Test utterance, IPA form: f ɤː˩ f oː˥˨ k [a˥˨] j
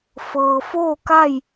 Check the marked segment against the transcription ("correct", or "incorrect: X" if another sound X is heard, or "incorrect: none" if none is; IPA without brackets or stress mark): correct